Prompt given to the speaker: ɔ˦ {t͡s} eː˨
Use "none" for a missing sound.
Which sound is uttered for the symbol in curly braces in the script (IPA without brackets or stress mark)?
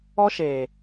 ʃ